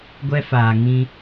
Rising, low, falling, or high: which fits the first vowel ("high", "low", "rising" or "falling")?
high